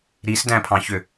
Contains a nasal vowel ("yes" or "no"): yes